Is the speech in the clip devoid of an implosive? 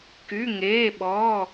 no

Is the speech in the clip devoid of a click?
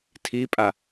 yes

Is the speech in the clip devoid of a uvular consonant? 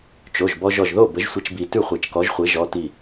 no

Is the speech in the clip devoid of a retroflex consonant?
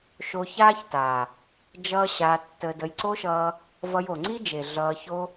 yes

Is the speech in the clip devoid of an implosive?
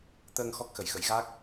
yes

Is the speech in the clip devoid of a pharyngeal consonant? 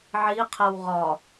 no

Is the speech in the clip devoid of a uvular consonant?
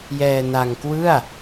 yes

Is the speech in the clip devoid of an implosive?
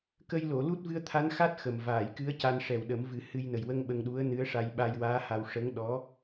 no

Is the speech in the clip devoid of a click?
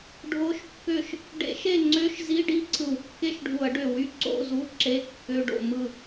no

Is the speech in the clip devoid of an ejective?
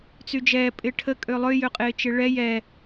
no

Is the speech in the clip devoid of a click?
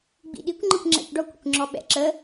no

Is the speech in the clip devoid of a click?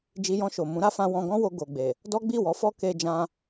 yes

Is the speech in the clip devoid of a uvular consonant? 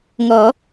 yes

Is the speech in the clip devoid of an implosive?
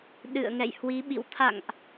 no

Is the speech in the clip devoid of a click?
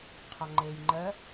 no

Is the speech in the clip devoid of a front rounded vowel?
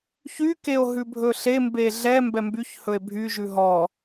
no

